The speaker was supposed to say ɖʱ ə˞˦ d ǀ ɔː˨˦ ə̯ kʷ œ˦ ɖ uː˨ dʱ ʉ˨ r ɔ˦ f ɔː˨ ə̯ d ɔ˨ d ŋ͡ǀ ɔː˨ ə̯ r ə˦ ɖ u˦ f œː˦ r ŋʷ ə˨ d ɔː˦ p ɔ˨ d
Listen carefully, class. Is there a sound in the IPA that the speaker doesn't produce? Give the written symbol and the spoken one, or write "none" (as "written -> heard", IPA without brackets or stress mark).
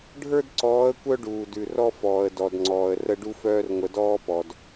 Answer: dʱ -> d